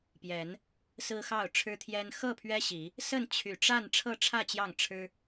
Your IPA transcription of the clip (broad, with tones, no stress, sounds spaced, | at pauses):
p j ɛ˨˦ n | s ɹ̩˦ x ɑ˥˨ ʊ̯ ʈ͡ʂʰ ɻ̩˦ t̪ʰ j ɛ˦ n x ɤ˥˨ pʰ ɥ ɛ˦ ɕ i˨˦ | s ə˥˨ n t͡ɕʰ y˨˩ ʈ͡ʂ a˥˨ n ʈ͡ʂʰ ɤ˥˨ ʈ͡ʂʰ ä˥˨ t͡ɕ j ɑ˥˨ ŋ ʈ͡ʂʰ ɻ̩˦